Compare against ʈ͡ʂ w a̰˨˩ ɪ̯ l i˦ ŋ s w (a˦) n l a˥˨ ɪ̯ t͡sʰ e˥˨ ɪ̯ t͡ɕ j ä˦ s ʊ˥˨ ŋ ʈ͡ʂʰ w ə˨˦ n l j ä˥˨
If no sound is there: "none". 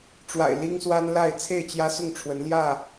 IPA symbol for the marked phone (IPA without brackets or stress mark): a˦